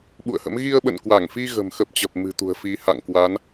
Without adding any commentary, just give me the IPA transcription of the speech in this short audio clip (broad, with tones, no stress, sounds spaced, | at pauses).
ɓ ṵ˧˨ ə̯ h ə̰˧˥ m ɣ i˧ ə̯ ɓ ə̰˧˨ n k w a˧˩ ŋ f i˧ ɣ ə̤˨˩ m x ə˦˥ p̚ t͡ɕ ə˨˩ p̚ m ɨ̤˨˩ t̪ ṳ˨˩ ə̯ f i˨˦ h a̰˧˨ ŋ k w a˨˦ n